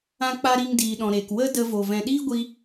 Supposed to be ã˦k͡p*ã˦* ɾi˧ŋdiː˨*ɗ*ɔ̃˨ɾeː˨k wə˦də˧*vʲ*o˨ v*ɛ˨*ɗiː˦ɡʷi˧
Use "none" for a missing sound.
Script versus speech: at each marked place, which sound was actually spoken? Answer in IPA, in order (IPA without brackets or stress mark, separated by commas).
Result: a˦, ɗ, v, ɛ̃˨